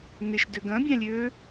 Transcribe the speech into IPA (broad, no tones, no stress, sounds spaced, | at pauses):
n ɪ ʃ d ø ɡ ɐ̃ bʲ ã lʲ ø